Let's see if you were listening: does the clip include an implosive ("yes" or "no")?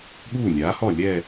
yes